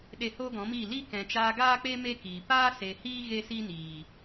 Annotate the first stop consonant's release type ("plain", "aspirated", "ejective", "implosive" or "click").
implosive